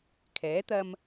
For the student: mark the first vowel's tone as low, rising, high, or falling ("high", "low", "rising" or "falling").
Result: rising